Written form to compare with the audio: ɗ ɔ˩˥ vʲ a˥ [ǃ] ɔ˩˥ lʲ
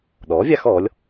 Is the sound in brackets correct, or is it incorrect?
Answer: incorrect